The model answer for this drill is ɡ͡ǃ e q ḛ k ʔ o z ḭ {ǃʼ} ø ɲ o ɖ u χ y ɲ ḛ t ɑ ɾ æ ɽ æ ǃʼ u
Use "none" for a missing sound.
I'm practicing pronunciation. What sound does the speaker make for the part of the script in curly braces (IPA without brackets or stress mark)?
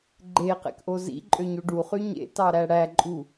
ǃʼ